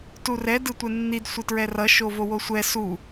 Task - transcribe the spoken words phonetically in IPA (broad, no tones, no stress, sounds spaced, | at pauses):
t u r ɛ d ɯ tʷ ɛ nː i d sʷ e t ɹ ɛ r ʌ ʃ o v o w o sʷ ɛ s u